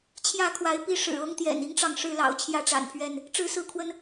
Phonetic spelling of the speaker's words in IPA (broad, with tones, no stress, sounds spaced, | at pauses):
t͡ɕʰ j ä˥˨ kʰ w a˨˦ ɪ̯ p i˦ ʂ ɻ̩˨˩ ɤ˦ ŋ t̪ j ɛ̰˨˩ n i˦ ŋ ʈ͡ʂ ɑ˨ ŋ ʂ ɻ̩˥˨ l ɑ̰˨˩ ʊ̯ t͡ɕʰ j ä˥˨ ʈ͡ʂ a̰˨˩ n pʰ ɥ ɛ˥˨ n | ʈ͡ʂ ɻ̩˦ s ɹ̩˥˨ kʰ w ə˦ n